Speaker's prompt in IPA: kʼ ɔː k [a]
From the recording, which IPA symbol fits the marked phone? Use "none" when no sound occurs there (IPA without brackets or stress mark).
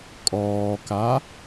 a